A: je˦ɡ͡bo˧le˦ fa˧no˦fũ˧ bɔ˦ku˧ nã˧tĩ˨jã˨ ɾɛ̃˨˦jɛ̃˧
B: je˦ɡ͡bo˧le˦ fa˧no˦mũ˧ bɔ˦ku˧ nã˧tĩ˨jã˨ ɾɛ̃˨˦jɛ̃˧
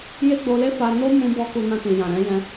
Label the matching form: B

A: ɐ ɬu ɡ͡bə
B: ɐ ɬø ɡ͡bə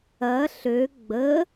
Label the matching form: B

